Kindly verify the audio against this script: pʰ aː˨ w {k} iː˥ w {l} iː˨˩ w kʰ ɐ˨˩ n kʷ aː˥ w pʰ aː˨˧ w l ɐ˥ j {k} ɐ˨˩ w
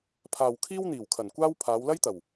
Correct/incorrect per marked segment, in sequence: incorrect, incorrect, incorrect

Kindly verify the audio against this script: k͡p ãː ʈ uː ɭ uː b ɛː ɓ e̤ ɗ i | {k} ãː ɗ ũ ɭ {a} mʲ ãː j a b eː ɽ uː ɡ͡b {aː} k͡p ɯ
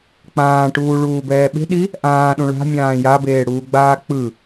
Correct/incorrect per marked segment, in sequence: incorrect, incorrect, correct

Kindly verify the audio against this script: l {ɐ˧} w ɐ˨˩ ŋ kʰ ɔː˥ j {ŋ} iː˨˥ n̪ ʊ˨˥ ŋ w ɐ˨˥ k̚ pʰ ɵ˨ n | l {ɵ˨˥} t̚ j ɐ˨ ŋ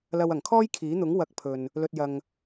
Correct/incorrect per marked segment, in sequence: correct, incorrect, incorrect

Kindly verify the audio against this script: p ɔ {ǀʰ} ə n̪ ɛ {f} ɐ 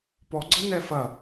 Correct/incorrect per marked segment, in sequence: incorrect, correct

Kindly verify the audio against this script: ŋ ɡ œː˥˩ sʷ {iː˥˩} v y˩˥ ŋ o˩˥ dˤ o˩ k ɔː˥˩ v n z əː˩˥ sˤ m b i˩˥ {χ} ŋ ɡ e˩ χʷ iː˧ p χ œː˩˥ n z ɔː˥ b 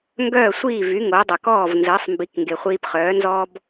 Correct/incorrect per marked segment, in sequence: correct, incorrect

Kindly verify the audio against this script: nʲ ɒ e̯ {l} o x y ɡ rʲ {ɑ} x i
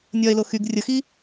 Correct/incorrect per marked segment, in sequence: correct, incorrect

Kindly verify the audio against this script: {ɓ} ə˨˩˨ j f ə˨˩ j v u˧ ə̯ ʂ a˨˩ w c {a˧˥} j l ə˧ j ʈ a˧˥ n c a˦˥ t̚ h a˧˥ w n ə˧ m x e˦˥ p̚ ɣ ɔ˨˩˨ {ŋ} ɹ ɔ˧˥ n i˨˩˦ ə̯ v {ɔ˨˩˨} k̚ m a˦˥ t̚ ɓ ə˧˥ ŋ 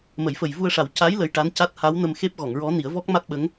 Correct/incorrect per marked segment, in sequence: incorrect, correct, correct, incorrect

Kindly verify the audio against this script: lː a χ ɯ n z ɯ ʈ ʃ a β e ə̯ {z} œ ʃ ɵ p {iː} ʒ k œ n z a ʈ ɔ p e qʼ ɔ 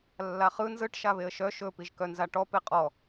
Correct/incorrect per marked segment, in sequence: incorrect, incorrect

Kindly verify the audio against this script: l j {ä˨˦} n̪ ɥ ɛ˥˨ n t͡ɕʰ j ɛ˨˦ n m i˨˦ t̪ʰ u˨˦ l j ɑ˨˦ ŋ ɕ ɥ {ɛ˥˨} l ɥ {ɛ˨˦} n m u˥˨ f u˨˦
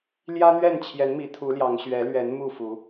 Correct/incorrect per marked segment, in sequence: incorrect, incorrect, correct

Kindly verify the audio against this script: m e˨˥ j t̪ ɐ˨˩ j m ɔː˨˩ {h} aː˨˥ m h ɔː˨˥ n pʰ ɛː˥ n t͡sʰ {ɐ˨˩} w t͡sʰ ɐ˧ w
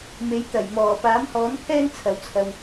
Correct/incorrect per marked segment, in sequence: incorrect, incorrect

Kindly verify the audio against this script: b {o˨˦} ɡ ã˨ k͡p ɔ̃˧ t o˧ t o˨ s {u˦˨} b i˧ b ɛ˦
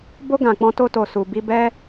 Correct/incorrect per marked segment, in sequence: incorrect, incorrect

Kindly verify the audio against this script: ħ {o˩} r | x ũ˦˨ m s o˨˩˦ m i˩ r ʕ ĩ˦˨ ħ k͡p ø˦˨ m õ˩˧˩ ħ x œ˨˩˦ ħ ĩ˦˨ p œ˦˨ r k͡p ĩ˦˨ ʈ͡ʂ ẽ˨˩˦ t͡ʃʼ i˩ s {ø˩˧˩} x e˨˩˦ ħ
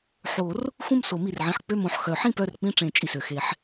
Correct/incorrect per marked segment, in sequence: incorrect, incorrect

